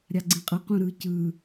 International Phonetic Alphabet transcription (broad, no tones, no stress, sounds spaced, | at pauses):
ɾʲ a ɡ͡ǀ ĩ qʼ ɤ q ũ ɾ ɯ c ɯ